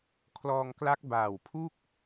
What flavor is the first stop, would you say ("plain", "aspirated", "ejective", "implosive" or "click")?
aspirated